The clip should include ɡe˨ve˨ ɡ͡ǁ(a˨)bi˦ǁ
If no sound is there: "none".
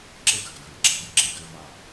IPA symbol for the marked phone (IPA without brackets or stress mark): a˦